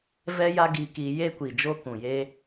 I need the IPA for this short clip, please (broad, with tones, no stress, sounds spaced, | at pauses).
v ɛ˦ j a˦ ɡ i˧ k i˧ j e˦ kʷ i˨ d͡ʒ o˦ k ũ˨ j e˦